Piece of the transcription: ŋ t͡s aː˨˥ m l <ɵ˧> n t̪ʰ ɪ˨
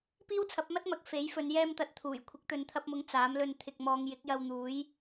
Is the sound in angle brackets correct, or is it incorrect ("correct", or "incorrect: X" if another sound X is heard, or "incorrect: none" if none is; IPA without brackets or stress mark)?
correct